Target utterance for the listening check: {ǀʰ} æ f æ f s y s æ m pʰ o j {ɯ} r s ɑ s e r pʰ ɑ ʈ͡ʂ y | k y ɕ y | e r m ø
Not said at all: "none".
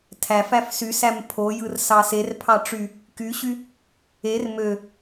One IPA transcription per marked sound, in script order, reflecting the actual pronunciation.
tʰ, ɯ

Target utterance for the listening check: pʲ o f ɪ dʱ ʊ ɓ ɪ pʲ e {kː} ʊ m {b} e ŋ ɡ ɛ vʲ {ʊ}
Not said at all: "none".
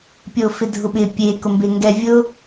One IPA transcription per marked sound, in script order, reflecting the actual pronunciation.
k, b, ʊ

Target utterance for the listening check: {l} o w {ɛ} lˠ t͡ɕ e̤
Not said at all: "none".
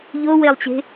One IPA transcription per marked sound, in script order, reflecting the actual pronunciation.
ʎ, e

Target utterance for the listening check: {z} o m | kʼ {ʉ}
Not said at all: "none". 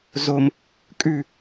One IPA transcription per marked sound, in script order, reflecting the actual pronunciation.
z, ʉ

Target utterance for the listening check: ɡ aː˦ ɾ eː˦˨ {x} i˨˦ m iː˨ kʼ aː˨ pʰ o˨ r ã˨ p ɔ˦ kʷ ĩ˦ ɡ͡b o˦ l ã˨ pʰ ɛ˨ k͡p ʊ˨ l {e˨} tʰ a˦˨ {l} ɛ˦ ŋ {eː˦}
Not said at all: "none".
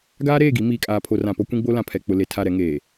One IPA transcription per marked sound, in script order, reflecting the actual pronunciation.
ɡ, e˨, ɾ, eː˨

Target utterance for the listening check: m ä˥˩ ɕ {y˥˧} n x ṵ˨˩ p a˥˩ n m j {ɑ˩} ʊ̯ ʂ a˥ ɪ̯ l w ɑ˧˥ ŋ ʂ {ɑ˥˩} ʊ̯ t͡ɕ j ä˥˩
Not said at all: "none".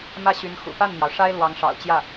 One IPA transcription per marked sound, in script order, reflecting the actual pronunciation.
y˧˥, ɑ˩, ɑ̰˨˩

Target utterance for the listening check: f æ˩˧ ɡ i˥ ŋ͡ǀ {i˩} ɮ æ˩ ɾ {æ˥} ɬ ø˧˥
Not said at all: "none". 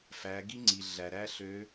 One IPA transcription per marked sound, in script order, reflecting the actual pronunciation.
i˩, æ˥

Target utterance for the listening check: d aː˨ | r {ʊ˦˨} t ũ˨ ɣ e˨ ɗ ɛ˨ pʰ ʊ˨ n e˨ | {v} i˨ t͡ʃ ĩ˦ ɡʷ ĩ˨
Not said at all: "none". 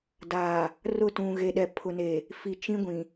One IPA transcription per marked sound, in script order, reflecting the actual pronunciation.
ʊ˦˨, f

